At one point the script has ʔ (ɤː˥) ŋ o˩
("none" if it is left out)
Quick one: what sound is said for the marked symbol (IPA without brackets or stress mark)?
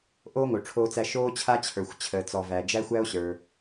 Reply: oː˥